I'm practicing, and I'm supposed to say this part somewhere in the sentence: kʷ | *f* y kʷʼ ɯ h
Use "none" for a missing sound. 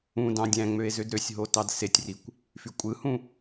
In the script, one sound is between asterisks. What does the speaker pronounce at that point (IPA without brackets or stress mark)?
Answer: f